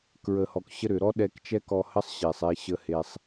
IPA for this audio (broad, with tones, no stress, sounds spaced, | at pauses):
k ɹ ə˨ h ɔ˨ k ɕ ə˦ ɾ ʏ˨ ɾ ɔ˦ ɗ ɛ˧ k t͡ʃ ɛ˦ k ɔ˧ h ə˦ sˤ ɕ e˨ sˤ e˧ ɕ ə˧ h e˧ sˤ